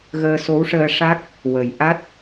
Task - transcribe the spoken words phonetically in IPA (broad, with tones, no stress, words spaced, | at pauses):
ɣəː˧so˧˥wʂəː˧ ʂa˦˥k̚ | wə˨˩j ʔa˦˥t̚